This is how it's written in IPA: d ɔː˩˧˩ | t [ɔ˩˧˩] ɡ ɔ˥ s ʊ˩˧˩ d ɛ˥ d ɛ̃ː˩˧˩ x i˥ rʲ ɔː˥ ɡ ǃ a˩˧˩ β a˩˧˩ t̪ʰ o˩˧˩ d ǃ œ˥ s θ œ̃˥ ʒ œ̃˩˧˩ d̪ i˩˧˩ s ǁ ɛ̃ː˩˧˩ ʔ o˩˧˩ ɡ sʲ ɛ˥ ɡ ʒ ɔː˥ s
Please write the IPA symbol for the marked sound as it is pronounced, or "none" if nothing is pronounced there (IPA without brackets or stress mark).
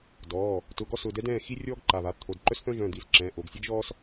ʊ˩˧˩